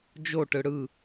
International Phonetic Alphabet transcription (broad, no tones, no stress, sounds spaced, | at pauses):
d͡ʒ o ʈ ɯ ɽ ɯ